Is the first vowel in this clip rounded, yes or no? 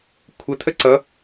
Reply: no